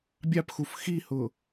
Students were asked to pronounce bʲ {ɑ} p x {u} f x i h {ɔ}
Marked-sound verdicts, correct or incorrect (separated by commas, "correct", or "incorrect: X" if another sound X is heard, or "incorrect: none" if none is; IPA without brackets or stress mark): correct, correct, incorrect: ʊ